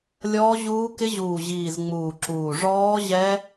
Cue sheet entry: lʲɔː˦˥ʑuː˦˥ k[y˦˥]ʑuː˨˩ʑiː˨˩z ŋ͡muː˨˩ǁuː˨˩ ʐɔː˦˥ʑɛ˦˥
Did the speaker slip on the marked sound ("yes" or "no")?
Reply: yes